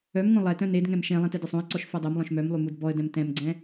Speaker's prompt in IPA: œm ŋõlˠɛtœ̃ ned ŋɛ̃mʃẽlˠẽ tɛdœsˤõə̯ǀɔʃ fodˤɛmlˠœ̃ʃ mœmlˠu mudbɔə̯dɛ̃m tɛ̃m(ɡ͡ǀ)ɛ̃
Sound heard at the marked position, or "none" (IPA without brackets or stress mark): ɡ͡ǀ